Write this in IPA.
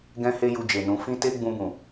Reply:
ɡɛ̃˦he˦ju˧ d͡ʒe˨nũ˨˦ fĩ˦te˦ ɡ͡bũ˧bũ˨

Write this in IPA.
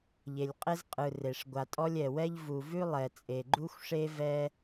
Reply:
ʎe˩lʲqʼe˦z qʼɯ˩ re˩ʂ ɡʷa˩tʼɔ˦lʲ ɛ˩wɛ˥ʎ vu˩vʉ˥ lˠɛ˩ t͡sʼe˩ɡ͡ǃu˥xʷʂe˥ vɛ˦

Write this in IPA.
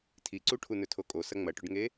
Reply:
tʰiǀuʈʰu nɵtʰokʼosɐ ŋ͡mɐʈɵɖŋe

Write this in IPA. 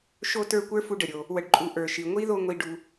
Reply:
ʃo˥tə˞˦ kʷə˞˥fu˦ɖə˩ɾʲo˨ | wə˨ɖǃʼu˨ ʔə˞˩ʃi˩ ŋʷi˥ðo˦ ŋʷi˨ɖu˨

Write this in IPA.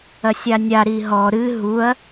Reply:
ɐsʲanʲa ɾiɦɔ ɾɨ ɦuɐ̯

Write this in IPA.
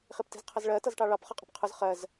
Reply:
χipti̤zqʰʌzɭɜ tʌzʈɑɭɑp χʌqʼə̤pqʰʊz χɜz

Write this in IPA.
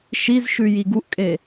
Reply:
ʃizʃʉ jiɡuʔkʼe

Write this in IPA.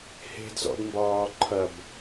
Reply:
he̤d zɔ̰dmbɒːǃʰɐb

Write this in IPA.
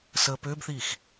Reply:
səːpʏːbθiːx

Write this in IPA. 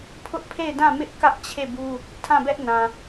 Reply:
pʰʊ˦ʔpʰe˦˨ɪ̯dã˦˨ mɪ˦ʔ kä˦ʔ t͡ɕʰe˦˨bu˦ | tʰã˦˨bɛ˦ʔ nã˨

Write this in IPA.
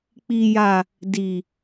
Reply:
k͡pi˨ja˨ | di˨

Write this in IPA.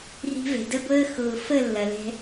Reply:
ri̤˧vɛ̤˨də˦ɡʷəː˦ xʊː˧ fə˦˨lːɐ˨lɛ̤˧

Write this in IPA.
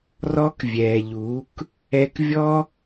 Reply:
rɔ˦kvʲɛː˨ʎuː˨˦k | ɛ˧k vʲɔ˦

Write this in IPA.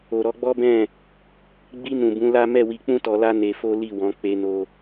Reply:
o˨ɾɔ˧ɡ͡bɔ˦bɛ̃˦˨ | ɡ͡bi˧ nũ˨bũ˨˦la˦ mɛ˦˨wi˧k͡pũ˦ tɔ˧la˦ ne˧fo˦ li˦˨wɔ̃˨˦k͡pe˧no˧

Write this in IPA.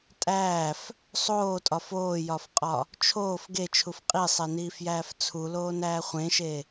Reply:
tʼæːf | sˤoːtʼɒf oːjɒfqʼɒ | t͡ʃʰoːf ɡet͡ʃʰuf qʼisˤeniːfjæːf t͡sʰuloːnæː χʷẽʃe

